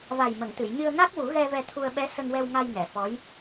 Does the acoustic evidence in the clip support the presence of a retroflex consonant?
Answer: no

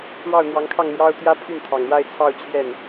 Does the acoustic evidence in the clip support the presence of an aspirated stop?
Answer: yes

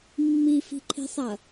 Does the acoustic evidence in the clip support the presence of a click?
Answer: yes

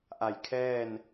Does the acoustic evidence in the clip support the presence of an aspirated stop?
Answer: yes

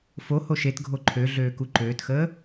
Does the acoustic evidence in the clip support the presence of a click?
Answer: yes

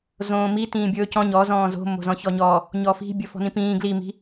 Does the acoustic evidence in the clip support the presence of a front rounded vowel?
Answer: no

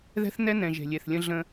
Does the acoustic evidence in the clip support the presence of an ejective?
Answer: no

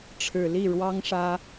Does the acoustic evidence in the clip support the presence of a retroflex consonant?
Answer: yes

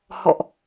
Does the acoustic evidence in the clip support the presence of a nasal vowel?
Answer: no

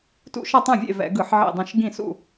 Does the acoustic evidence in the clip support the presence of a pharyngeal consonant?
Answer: yes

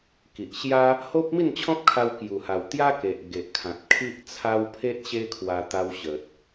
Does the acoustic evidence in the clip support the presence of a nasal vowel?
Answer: yes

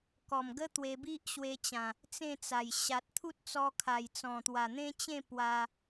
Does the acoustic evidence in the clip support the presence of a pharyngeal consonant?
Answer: no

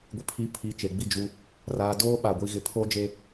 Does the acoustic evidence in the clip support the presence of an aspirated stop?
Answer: yes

